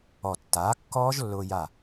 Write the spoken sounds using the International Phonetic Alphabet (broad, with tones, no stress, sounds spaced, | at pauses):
ɔ˧˩ tː aː˩˥ kː ɔː˦˥ ʒ lː ʊː˧ j a˧˩